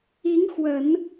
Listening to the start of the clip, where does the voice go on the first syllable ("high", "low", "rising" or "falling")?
rising